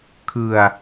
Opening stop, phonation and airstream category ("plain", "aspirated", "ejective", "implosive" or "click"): aspirated